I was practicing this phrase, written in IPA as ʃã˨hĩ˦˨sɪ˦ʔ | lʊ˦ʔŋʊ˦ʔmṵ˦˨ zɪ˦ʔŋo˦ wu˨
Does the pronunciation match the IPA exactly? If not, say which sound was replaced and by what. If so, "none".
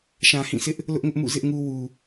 o˦ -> u˦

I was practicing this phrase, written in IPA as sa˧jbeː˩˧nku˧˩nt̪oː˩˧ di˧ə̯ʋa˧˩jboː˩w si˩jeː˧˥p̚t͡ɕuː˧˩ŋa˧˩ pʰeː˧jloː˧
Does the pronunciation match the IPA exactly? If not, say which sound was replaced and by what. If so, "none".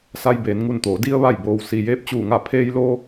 k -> ŋ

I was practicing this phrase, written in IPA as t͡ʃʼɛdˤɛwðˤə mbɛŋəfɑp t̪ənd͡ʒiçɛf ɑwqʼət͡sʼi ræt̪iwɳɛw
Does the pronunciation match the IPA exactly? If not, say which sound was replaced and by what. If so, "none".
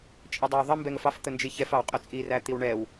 p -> f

